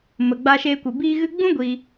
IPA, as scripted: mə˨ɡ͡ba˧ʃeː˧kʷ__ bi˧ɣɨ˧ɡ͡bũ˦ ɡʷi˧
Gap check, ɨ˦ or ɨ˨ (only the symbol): ɨ˨